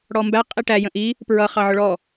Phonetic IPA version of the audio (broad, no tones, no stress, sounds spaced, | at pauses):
ɽ ɔ m b æ qʼ i ʈ æ j ə̃ ʔ i | p ɹ ʌ χ ɑ ʕ ʊ ɭ ɔ